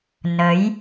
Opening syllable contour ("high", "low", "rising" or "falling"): rising